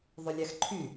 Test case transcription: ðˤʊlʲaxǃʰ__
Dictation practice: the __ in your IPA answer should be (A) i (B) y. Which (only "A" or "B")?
B